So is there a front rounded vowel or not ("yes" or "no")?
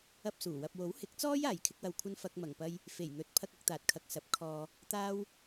no